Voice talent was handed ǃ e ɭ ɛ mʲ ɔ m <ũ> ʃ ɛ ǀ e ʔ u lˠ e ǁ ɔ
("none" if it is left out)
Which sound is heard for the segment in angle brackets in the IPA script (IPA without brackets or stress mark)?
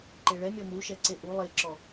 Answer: u